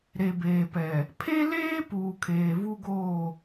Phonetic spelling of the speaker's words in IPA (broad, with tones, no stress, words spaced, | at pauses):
ɾe˨beː˨pɛ˨ | pʰe˦leː˦ puː˨kʰeː˨ vu˦ɡoː˦˨